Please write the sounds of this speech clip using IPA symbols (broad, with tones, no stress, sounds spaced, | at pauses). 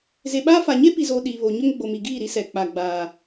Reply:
z e˨ ɓ aː˦ f a˨ ɲ e˦ p i˨ z oː˨ ɗ iː˨ β o˨ ɲ ʊ˦ ŋ ɡ͡b o˨ m i˨ ɡ iː˦˨ ɾ i˦ s ɛ˨ k͡p a˨ ɡ͡b aː˨